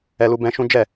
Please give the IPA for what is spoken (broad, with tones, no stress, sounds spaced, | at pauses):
ɛ˧ l u˧ b ɛ̃˦ ʃ ũ˦ d͡ʒ ɛ˦˨